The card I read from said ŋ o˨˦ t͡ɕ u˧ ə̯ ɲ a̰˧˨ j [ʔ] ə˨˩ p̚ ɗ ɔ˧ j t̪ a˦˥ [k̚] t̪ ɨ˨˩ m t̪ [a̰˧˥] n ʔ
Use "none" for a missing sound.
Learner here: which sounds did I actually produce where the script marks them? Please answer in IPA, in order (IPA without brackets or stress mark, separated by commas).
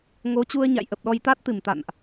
ʔ, t̚, a̰˧˨